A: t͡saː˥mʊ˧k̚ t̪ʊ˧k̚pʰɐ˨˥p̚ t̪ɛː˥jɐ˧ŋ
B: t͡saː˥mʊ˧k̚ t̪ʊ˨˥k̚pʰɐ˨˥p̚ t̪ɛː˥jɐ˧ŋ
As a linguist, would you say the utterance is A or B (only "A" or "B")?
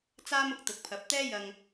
B